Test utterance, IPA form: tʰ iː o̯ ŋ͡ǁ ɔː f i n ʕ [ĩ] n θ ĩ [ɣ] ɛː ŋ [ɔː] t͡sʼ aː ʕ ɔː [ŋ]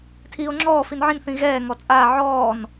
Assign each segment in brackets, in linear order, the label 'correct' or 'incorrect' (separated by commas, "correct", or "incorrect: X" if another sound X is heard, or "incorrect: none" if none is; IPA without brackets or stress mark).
correct, correct, incorrect: ɔ, incorrect: n